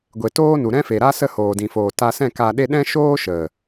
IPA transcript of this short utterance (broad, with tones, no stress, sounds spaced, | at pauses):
ɡʷ e˨ t oː˦ n u˨ ɾ ɛ̃˦ f e˨ ɾ a˦ s ə˦˨ h oː˨ d ĩ˨ f oː˨ t a˧ s ɛ̃˦˨ k a˧ ɗ e˦ ɗ ɛ̃˦ ʃ oː˦ ʃ ə˨